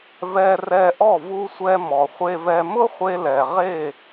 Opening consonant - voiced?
yes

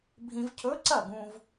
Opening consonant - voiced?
yes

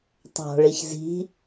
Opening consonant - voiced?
no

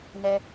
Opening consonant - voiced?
yes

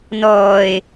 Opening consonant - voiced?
yes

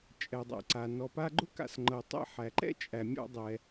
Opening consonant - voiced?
no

